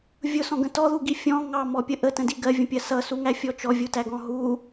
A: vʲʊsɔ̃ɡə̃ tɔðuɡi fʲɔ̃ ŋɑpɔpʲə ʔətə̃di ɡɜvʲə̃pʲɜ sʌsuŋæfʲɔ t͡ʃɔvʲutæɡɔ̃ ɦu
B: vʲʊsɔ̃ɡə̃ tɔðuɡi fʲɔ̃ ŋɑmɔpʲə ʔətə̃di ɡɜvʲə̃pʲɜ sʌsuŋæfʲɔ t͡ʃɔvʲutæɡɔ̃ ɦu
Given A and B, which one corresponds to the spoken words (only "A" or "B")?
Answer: B